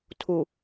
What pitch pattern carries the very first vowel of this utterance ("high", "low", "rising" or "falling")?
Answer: low